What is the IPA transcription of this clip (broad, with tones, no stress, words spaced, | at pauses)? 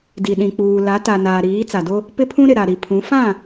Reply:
di˨ ɗĩ˨k͡puː˨la˨˦ ta˨ naː˨ɾiː˨˦ t͡sa˨do˦ | pɪ˦pʰũ˦ɾɪ˨ ɾa˨ɾi˨pʰũ˨˦ fã˦˨